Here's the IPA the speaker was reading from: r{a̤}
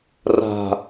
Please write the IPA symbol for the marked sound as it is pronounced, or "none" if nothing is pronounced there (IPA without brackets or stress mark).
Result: a̤